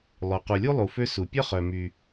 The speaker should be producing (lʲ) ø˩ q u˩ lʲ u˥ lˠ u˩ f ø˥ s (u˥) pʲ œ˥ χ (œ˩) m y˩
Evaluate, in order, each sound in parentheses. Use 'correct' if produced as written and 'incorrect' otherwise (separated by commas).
incorrect, incorrect, correct